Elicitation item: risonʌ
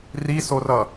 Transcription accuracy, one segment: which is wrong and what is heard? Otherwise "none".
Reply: n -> r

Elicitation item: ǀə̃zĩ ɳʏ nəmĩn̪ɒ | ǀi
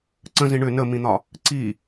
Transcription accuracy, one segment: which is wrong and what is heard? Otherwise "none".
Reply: none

